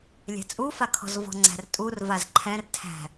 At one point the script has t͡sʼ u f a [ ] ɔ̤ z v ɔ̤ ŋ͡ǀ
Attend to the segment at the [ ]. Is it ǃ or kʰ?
kʰ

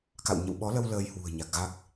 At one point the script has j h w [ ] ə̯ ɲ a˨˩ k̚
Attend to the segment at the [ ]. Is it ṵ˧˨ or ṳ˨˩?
ṳ˨˩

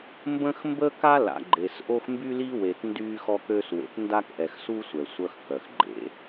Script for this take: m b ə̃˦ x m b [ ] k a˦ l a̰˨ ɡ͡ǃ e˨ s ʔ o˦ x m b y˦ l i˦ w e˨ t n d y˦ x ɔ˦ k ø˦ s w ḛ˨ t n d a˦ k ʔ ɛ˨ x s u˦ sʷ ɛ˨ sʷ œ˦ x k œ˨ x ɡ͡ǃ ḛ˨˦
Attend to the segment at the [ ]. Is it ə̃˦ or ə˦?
ə˦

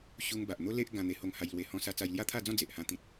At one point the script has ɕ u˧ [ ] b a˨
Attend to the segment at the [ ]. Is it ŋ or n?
ŋ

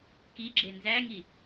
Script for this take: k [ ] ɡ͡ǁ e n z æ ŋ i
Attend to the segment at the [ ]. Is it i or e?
i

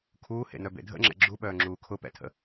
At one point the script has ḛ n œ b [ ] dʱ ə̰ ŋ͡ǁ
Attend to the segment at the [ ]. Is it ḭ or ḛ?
ḛ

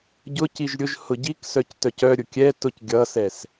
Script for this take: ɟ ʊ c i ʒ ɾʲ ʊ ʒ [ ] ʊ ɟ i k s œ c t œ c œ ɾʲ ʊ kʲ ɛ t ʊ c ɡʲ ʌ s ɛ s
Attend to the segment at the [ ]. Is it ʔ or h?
h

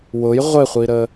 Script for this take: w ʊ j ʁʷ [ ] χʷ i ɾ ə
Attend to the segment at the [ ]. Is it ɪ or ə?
ɪ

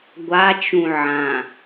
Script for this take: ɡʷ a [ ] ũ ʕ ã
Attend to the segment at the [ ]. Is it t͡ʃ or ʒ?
t͡ʃ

